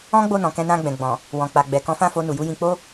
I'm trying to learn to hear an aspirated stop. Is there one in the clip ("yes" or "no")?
no